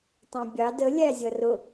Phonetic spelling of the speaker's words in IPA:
tˤ æ̃ bʲ ɑ d ə lʲ æ zʲ ʌ r ʊ

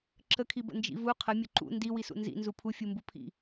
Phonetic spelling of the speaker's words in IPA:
ǁ ə kʰ i b ə̰ n d͡ʒ ḭ v u qʰ ə mʲ ʊ ǃ ṵ n d i w i s ṵ n z ḭ n z u pʰ u fʲ u m b u pʰ ḭ

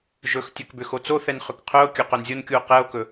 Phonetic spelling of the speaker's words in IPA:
ʒ ɵ x tʲ ɵ k b ʏ x o t͡s o θ ɛ n χ ʏ k qʰ œ o̯ kʲ ɵ q œ n zʲ o n kʲ u o̯ q ɛ o̯ k ɵ

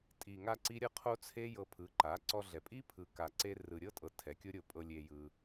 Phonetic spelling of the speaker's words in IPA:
tʼ i˨ ŋ a˧ ǀ i˦ ɾʲ ɤ˦ qʰ o˦ t͡sʰ e˦ j ɤ˧ pʰ ɯ˨˦ ǃ a˨˦ ǀ ɔ˧ ɮ ɛ˨ pʼ i˦ pʰ ɯ˨ k a˨ ǀ e˧ r ɯ˨ ɾʲ ɤ˦ tʼ ɤ˨ tʰ ɛ˨˦ kʲ o˦ ɾʲ o˧ pʼ ɤ˧ lʲ e˧ j ɯ˧

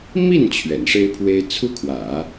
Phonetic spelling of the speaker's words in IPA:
m i˥˩ n t͡ɕʰ ɥ ɛ̰˨˩ n ʂ e˥ ɪ̯ pʰ w e˥ ɪ̯ t͡sʰ u˥ kʰ w ä̰˨˩˦

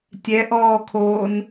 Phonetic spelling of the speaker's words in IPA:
tʲ ɛ ʔ ɔː kʰ oː n

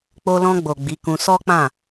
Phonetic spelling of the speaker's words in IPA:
k͡p o˧ l ɔ̃˧ ɡ͡b o˨ ɡ͡b i˨˦ k ũ˧ s ɔ˦ k͡p ã˦˨

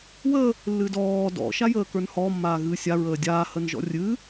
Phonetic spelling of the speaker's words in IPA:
w ə | lː ɨ d ɔː d ɔ̰ ʃ a j əː k ə˞ n h ɔ mː aː ɣ ɨː sʲ a ɹ əː dʲ aː h ə n ʒ ɔ̰ rʲ ɨː

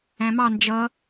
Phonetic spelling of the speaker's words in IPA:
æ̃ m ɑ n d͡ʒ ʌ

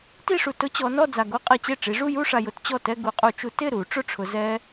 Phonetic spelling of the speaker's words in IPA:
t i˥˧ ʂ u˨ t ʊ˦˥ t͡ɕ ɔ˨˦ n ɔ˥˧ d͡z a˨ ɡ o˦˥ qʼ i˨ t͡ɕ e˥˩ ʈ͡ʂ i˨˦ ʐ u˥˧ j u˥˧ ʂ a˨ j ʊ˨˩˦ t t͡ɕ ɔ˥˩ t ɛ˥˧ ɡ u˨˩˦ qʼ u˨ t͡ʃ u˦˥ t ɪ˥˩ ɾ u˨˩˦ ʈ͡ʂ ʊ˥˧ ʈ͡ʂʰ ʊ˨˦ z ɛ˦˥

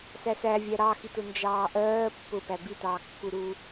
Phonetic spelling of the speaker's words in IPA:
s æ s æ vʲ æ ɾ ɑ x i t ʊ n d͡ʒ ɑː ʔ ɜː pː ʊ p æ b i t ɑː kː u ɾ uː

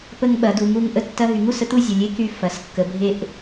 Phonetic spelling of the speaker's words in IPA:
p ə˥ ŋ ɓ ɐ˩˥ d u˩˥ ŋ u˥ ŋ ʔ ə˥ tː ɐ˥ ɦ y˩˥ ŋ u˩˧˩ s ə˥ t̪ u˥ zʲ ə˩˧˩ lʲ e˥ k y˥ f ɐ˩˧˩ s kː ə˩˥ bʱ e˥ ʔ

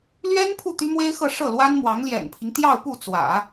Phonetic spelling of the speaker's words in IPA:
l ɥ ɛ˥ n pʰ u˥˩ t̪ y˥ m w e˥ ɪ̯ x ɤ˥˧ ʂ ɤ˥˩ l w a˥ n m w ɑ˧˥ ŋ l j ɛ̰˨˩ n pʰ i˦ ŋ t̪ j ɑ˥˧ ʊ̯ p u˥˩ t͡s w ä̰˨˩˦

